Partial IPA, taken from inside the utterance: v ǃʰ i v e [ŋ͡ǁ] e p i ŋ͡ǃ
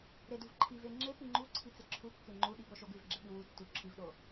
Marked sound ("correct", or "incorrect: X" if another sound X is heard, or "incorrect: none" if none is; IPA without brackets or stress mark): correct